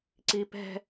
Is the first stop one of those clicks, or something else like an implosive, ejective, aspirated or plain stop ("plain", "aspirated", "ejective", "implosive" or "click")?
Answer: click